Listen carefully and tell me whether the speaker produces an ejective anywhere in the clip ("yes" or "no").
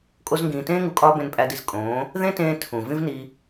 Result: yes